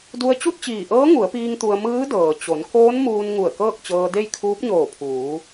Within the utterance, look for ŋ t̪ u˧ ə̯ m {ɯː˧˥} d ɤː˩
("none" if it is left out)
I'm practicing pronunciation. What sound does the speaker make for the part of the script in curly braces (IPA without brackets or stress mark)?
ɯː˧˥